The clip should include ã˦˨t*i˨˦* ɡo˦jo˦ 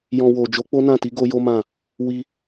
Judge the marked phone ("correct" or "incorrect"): correct